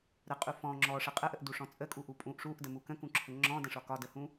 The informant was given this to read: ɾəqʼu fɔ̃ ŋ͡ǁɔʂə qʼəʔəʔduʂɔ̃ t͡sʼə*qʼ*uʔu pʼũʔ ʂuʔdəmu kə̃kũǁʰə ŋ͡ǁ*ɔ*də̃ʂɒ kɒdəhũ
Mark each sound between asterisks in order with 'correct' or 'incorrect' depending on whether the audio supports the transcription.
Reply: incorrect: kʼ, incorrect: ɔ̃

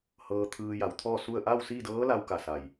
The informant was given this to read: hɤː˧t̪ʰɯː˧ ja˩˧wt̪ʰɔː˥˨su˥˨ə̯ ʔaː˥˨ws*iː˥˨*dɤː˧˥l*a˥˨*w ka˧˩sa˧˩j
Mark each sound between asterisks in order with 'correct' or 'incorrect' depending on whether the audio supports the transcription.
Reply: correct, incorrect: a˧

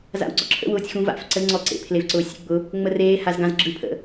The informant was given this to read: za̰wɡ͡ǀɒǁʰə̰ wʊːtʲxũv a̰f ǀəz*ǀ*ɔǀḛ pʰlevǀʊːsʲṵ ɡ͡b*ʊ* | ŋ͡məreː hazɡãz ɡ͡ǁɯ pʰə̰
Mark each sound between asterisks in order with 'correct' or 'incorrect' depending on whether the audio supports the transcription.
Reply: incorrect: ŋ͡ǀ, correct

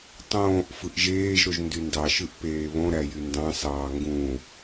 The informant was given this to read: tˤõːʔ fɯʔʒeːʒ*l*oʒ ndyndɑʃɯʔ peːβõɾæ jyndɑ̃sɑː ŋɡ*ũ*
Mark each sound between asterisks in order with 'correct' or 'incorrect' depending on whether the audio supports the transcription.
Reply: incorrect: ɾ, correct

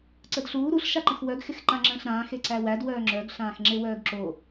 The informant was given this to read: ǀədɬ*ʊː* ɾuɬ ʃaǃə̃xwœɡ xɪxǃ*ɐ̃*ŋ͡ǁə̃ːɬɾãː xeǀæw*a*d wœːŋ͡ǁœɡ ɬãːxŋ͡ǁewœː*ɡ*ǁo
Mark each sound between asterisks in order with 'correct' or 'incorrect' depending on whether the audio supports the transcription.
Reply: incorrect: uː, incorrect: ã, incorrect: æ, correct

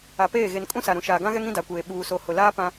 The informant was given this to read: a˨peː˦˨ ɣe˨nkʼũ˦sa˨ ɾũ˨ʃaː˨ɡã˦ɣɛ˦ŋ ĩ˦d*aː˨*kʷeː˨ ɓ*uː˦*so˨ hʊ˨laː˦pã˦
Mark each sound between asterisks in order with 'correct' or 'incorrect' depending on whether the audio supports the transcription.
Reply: incorrect: a˨, incorrect: uː˨

